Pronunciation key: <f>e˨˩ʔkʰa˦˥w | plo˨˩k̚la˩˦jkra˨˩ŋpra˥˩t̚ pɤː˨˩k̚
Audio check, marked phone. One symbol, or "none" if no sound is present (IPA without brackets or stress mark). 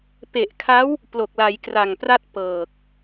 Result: p